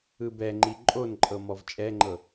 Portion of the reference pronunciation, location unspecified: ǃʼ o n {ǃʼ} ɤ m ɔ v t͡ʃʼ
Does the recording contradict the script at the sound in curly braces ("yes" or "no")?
no